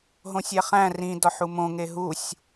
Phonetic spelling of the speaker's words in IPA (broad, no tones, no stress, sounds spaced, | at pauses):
ɦ õ sʲ æ χ æ̃ r ĩ d ɒ ħ u m õ ŋ e ɦ u sʲ